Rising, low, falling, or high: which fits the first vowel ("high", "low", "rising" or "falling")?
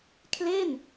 falling